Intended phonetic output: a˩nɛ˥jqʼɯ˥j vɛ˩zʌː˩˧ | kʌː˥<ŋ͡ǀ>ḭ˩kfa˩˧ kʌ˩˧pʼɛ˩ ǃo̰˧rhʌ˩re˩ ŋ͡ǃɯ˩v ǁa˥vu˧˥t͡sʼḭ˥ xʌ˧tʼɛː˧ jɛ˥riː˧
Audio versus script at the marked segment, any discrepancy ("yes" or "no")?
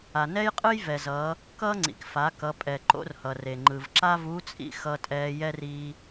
no